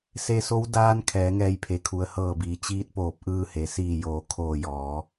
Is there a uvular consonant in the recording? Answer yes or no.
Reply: no